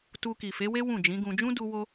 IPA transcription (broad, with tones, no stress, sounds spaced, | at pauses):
t u˧ k i˨ f e˨˦ w e˦ w ũ˦˨ d͡ʒ ĩ˨˦ ɡ ũ˧ d͡ʒ ũ˦ d u˧ w o˧